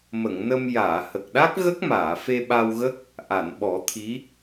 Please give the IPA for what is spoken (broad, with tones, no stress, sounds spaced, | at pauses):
m ə˨˩˨ ŋ n ə˧ m j aː˨˩˨ h ə˨˩ k̚ ɗ a˦˥ k̚ ɣ ə˦˥ k̚ m aː˨˩˨ f e˧ ɓ a˧ w ɣ ə˦˥ k̚ | ʔ a˨˩˨ n ɓ ɔ˨˩˦ t̪ʰ i˧˥